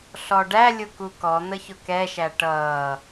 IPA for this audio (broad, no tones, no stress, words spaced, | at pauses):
ɬɔɖæ lʲʊkukɔ n̪əçʊkɛʃæ ʈʌː